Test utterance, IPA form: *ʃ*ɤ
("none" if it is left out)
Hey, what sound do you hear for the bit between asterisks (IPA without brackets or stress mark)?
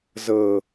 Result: z